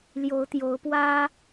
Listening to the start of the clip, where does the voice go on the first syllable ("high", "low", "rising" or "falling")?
rising